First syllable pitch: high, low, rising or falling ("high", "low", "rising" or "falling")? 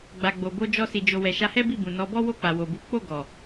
low